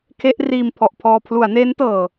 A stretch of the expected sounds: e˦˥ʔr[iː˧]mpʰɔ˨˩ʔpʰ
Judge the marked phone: correct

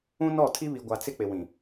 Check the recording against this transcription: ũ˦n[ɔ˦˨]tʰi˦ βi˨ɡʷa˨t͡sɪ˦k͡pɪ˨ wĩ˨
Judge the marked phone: correct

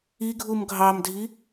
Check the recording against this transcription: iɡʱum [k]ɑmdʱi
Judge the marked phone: incorrect: ɡʱ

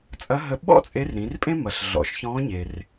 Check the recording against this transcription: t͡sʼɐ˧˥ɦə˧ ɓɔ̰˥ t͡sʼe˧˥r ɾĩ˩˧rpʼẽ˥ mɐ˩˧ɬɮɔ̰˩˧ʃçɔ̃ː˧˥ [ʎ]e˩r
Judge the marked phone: incorrect: ɲ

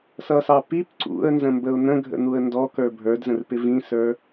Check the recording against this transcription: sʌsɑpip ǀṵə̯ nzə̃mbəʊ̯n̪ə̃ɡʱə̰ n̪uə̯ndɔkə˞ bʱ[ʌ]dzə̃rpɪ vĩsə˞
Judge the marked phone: incorrect: ə˞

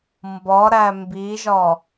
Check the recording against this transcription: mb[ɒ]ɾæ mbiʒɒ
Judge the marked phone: correct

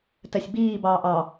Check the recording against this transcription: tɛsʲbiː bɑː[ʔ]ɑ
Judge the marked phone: correct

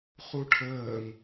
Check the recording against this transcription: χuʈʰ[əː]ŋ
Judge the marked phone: correct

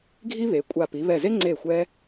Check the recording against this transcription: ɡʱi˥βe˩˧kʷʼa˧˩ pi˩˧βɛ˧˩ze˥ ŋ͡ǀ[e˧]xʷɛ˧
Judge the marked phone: incorrect: e˧˩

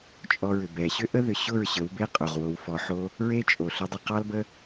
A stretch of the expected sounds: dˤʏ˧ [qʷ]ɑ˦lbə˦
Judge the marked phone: incorrect: q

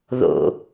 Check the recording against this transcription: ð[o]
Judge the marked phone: incorrect: o̰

